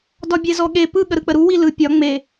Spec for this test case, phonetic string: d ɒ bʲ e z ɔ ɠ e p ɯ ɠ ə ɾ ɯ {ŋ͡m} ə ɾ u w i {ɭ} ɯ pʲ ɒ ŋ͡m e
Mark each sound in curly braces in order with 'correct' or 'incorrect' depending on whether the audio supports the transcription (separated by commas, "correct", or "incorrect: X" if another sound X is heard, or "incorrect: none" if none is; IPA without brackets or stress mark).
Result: incorrect: k͡p, incorrect: l